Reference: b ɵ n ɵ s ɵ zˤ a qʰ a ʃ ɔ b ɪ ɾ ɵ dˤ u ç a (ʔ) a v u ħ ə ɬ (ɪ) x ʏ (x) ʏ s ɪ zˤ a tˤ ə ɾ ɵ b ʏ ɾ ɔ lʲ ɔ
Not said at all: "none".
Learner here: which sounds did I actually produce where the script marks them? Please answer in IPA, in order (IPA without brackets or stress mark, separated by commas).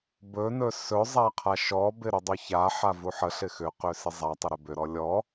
ħ, ɪ, q